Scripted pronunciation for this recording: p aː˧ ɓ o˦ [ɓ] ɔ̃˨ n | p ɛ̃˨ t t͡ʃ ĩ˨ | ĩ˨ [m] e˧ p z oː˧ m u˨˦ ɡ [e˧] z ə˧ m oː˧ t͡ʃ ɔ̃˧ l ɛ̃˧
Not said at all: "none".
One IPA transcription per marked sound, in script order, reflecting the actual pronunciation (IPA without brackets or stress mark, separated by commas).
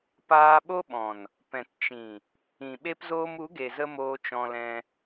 ɓ, ɓ, e˨